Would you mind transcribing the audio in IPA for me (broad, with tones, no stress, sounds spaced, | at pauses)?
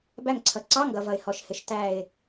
b æ˧˩ ŋ ǀʰ ʌ˩ ǀ ɑ˧˥˧ ŋ ɡ ʌ˩ v ʌ˩ ɪ̯ h ɔ˩ ʃ h ɪ˩ ʃ t æ˧˩ ɪ̯